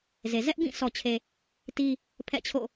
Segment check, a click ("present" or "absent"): absent